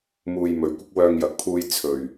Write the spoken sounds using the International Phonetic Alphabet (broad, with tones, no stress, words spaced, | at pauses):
muː˧jmɵ˨ɥkʷɪ˥k̚ wœː˧ŋjɐ˨k̚pʰuː˧j t͡sʰɵ˨˩ɥ